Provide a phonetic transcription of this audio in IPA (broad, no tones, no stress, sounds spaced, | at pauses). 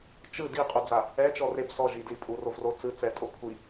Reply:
t͡ʃ ɯ d i qʼ u d͡z a | ɛ t͡ʃ ɔ r e b s ɔ ʒ i d l i pʼ u r o v r o t͡s ɯ t͡s ɛ tʼ o kʷʰ i